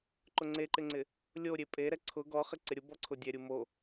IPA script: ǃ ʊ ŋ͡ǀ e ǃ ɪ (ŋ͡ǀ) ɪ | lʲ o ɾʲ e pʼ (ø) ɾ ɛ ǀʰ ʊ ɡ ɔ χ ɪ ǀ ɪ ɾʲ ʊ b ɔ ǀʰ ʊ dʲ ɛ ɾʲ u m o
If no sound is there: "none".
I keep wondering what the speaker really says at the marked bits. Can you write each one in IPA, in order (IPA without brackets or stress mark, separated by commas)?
ŋ͡ǀ, e